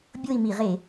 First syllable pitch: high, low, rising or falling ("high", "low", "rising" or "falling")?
falling